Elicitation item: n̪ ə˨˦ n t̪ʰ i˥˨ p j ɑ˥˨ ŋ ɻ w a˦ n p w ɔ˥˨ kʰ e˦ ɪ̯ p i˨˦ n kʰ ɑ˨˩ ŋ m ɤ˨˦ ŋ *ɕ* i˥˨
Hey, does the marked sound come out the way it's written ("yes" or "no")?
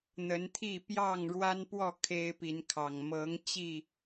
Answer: no